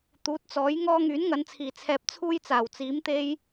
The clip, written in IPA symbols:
t̪ uː˨˥ t̚ t͡s ɔː˨˥ j ŋ ɔː˥ ŋ yː˨˥ n ŋ ɐ˨˧ n t͡sʰ iː˨˩ t͡sʰ ɛː˧ p̚ t͡sʰ uː˥ j t͡s aː˨˩ w t͡s iː˨˥ m t̪ e˥ j

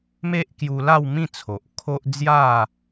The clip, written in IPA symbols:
m e˦ ʔ k j u˧ l a˥˧ w m ĩ˥˧ t͡sʰ o˨ ʔ kʰ o˦ ʔ d͡z j a˥˧

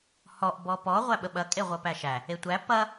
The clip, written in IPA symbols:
h ɔ ʔ b ɔ p ɔ ʁʷ æ ɓ ə ɓ ɐ kʼ e ʁʷ ɐ p æ ʃ æ | e tʷ æ p ɐ

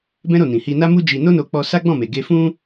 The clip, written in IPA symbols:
b ɛ̃˦ ɾ o˦˨ n ĩ˨ h i˧ n a˦ m u˦ d͡ʒ i˧ n o˦ n o˧ k͡p ɔ˧ s a˦ ɡ͡b ɔ̃˦˨ m e˨ ɡ e˧ f ũ˦

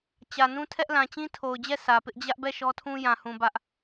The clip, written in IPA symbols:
t͡ɕ ä˨ n ũ˦ tʰ ɛ˦ ʔ l ã˨ t͡ɕ ĩ˦ tʰ o˨ ʊ̯ d͡ʑ ɛ˦˨ s ä˨ p ɪ˦ ʔ d͡ʑ ä˦ ʔ b ɛ˦˨ ʃ ɔ˦ tʰ ũ˦ j ã˨ h ũ˨ b ä˦ ʔ

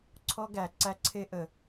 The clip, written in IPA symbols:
ǀʰ ɔ˦ ɡ æ˨ ǀ æ˦ ǀʰ e˦ ʔ ə˨

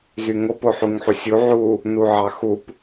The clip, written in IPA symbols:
z y ŋ o p o ħ u ŋ ħ u sʲ u ʕ u | n u ʕ ɑ x u p

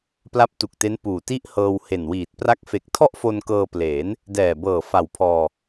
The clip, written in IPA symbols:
p l a˦˥ p̚ t u˨˩ k̚ t e˦˥ n p uː˨˩ t i˥˩ ʔ h ɤː˧ w h e˨˩ n w iː˨˩ t̚ p r a˦˥ k̚ f e˨˩ k̚ tʰ ɔ˥˩ ʔ f o˧ n k ɤː˧ p l eː˩˦ n | d ɛː˨˩ b ɤː˨˩ f a˨˩ w pʰ ɔː˧

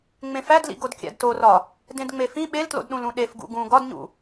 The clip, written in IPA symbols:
ŋ͡m ẽ f æ d l ḭ ɡ o d kʲ æ̰ d t o r ɒ | d ẽ d ŋ͡m e f ĩ ɓ e l t l o̰ d ɗ ũ l ũ ɗ e f ɡ ṵ ɡ ũ ɡ ɒ d ɲ ṵ

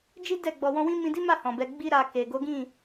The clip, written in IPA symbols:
d͡ʒ i˦ d ɛ˦˨ ɡ͡b ɔ˨ w ɔ̃˧ w ĩ˦ m ĩ˧ d i˦ m a˦˨ h ɔ̃˨ b ɛ˧ ɡ͡b i˦ ɾ a˧ k e˨ ɡ o˨˦ ɡ ĩ˦˨

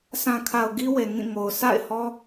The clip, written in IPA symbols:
sʰ ã˨ kʰ a˨ ʊ̯ ɡ i˦ w e˨ ŋ ĩ˦˨ ŋ o˨ ʊ̯ sʰ a̰˦˨ ɪ̯ h ɔ˦

